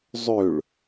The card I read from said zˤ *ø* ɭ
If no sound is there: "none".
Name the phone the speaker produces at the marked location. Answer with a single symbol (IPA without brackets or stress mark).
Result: ø